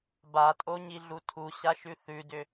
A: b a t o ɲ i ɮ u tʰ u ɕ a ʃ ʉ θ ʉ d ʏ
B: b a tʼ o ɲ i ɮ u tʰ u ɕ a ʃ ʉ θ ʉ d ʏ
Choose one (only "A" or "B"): B